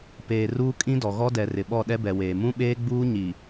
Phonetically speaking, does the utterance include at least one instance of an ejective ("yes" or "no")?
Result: yes